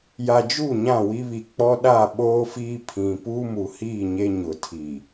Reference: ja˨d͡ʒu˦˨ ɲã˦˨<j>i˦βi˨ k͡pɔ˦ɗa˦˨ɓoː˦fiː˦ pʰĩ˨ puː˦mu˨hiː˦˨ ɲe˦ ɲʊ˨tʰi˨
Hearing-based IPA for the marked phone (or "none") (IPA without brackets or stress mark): w